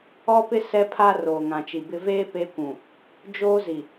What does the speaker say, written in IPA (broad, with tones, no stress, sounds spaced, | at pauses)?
ɔ˦ p ɪ˦ s ɛ˦ pʰ aː˦ r oː˨ ŋ ã˨ t͡ʃ i˨ b ɪ˦ v eː˦ p eː˦ kʷ ũ˨ | d͡ʒ oː˦ z i˨